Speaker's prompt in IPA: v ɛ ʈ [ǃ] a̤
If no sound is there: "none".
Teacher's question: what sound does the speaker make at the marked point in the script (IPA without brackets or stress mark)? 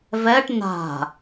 n